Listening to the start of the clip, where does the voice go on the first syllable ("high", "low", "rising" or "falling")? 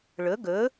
rising